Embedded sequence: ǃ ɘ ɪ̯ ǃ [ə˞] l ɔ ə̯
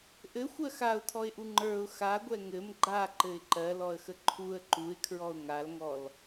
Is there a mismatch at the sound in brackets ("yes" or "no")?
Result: yes